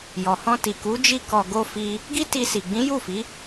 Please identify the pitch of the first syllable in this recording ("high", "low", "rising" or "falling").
low